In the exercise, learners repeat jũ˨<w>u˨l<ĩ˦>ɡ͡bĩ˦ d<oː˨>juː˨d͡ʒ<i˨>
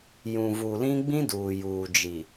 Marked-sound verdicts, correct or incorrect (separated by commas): incorrect, correct, incorrect, correct